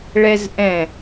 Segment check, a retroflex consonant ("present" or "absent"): present